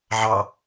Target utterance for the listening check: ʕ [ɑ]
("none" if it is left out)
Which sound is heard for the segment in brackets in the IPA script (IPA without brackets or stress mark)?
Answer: ɑ